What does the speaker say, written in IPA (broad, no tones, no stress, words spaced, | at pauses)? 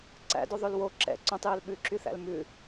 ǀæ̰doðˤøl wo ǁɛ̰ ǀõtˤjøl ɓʉǁyθæ̰l mʉ